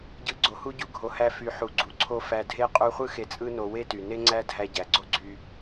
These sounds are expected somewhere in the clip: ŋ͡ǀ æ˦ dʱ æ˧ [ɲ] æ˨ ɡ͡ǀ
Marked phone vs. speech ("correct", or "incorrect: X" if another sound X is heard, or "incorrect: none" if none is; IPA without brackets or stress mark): incorrect: ɟ